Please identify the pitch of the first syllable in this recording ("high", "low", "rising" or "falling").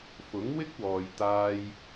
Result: rising